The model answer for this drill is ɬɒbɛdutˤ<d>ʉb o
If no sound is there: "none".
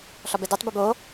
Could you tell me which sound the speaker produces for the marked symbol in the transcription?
b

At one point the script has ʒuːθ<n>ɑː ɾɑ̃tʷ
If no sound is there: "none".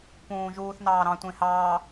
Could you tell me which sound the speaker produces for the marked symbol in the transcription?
n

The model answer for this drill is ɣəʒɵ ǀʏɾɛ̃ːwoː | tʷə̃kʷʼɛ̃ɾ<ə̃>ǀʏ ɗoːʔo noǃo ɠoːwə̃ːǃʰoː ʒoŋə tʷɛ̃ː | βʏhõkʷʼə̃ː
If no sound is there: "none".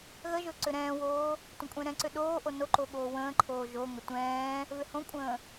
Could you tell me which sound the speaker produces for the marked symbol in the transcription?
ɛ̃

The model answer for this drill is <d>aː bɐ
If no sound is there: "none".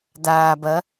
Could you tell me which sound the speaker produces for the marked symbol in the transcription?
d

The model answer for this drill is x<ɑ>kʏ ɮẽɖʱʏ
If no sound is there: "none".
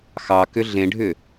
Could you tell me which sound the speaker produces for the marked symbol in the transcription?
ɑ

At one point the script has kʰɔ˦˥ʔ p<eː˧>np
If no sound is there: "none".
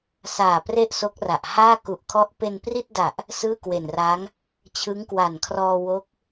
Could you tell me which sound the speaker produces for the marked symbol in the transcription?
e˧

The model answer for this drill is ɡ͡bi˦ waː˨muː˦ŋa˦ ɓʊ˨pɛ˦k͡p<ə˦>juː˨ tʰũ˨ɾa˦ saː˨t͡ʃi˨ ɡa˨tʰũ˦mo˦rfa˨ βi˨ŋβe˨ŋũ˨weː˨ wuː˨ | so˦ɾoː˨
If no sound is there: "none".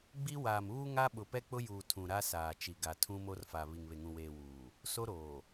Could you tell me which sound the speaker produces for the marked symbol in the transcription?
ʊ˦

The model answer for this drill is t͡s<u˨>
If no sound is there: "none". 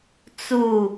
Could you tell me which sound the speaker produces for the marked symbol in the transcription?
u˦˨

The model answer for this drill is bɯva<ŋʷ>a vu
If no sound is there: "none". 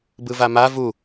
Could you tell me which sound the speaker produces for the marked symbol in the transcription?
m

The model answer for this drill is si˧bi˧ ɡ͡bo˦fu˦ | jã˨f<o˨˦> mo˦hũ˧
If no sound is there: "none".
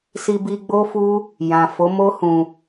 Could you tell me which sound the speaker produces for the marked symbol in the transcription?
o˨˦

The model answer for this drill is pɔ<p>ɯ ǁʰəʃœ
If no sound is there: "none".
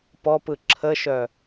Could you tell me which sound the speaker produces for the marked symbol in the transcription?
p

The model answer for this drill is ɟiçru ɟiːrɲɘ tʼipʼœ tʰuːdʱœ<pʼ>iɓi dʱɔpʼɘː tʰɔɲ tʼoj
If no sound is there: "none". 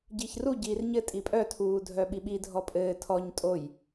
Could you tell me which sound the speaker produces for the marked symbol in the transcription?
ɓ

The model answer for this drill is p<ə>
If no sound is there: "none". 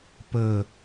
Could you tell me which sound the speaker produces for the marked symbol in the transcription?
ə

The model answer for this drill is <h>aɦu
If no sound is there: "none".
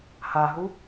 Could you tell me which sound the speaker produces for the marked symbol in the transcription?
h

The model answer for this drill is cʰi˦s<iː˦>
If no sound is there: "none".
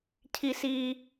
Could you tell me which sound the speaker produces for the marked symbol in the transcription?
iː˦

